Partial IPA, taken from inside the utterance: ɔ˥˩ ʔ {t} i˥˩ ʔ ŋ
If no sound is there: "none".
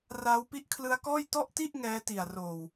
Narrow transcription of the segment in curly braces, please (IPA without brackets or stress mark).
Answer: t